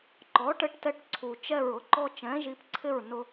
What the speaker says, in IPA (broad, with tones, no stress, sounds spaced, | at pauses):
ǃ ɔ˩˥ ʈ ɘ˧ ʈ t ɛ˧ ʈ ǀʰ u˩ t͡ʃ ɛ˥˩ ɹ ʊ˩˥ ǃ ɔ˥ t͡ʃ ɛ̃˩˥ ʒ i˩˥ p ǀʰ ɪ˥˩ ɹ n ʊ˧